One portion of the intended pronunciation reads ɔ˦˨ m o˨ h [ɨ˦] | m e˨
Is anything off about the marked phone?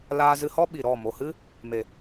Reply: no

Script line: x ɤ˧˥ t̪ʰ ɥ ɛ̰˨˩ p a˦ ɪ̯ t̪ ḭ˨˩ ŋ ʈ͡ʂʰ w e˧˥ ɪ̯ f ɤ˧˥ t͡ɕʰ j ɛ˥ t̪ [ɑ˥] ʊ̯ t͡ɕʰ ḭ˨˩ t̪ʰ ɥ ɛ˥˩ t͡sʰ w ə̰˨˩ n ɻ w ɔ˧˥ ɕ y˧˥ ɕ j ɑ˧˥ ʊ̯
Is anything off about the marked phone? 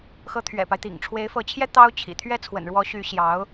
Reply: no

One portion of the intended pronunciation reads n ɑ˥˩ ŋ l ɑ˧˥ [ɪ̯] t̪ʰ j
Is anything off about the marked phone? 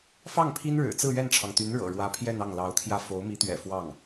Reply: yes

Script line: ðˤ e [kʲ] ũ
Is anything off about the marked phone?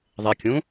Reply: no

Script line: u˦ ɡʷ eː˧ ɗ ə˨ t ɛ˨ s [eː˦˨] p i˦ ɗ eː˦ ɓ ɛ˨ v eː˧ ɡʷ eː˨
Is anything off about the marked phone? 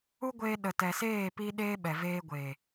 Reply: no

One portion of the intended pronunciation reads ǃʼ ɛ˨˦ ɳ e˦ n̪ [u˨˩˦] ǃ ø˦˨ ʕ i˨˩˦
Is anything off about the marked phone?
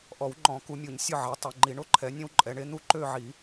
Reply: yes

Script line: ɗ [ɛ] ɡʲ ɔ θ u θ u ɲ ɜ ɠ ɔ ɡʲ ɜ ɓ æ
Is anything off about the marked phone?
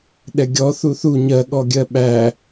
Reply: no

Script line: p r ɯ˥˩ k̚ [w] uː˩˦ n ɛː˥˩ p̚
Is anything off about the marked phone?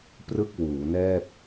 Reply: no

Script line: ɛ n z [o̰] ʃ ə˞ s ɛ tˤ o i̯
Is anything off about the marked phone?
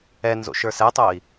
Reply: no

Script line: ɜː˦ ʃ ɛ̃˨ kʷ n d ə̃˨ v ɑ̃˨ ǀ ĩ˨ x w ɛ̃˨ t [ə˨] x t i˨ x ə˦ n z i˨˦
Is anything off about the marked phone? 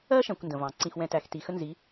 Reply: yes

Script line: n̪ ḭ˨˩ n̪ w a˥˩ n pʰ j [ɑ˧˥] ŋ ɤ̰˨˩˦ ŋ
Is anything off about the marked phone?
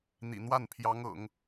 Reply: no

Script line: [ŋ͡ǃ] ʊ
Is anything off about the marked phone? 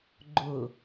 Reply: yes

